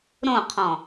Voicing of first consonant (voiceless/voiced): voiced